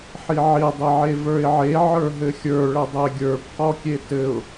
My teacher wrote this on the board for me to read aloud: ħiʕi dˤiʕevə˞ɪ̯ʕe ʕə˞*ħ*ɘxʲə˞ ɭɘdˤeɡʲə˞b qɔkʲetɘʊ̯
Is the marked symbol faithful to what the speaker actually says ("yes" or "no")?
no